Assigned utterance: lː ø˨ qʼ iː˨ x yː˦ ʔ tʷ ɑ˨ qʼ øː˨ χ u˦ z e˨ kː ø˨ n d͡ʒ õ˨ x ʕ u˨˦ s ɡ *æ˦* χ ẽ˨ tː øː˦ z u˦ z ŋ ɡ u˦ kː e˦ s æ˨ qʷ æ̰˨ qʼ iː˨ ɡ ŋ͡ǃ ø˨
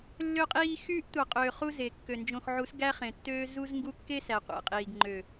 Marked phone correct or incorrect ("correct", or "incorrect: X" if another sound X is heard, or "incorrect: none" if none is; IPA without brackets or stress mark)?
correct